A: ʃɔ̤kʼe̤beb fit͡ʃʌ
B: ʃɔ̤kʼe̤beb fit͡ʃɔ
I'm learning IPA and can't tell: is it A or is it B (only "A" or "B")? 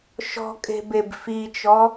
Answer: B